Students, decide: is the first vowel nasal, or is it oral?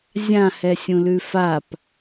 nasal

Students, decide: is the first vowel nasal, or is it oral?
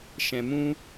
nasal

